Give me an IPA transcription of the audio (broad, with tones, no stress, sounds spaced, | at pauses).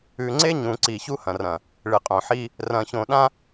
ʉ˨ ŋ͡ǀ e˦ ɲ ũ˨ ǀ i˨ ç u˦ h ɐ̃˨ r ɐ̃˨ | ɭ ɨ˨ qʼ õ˨ ħ i˦ | r ɐ̃˨ ç õ˨ ɗ ã˦